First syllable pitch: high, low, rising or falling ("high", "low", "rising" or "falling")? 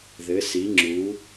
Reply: rising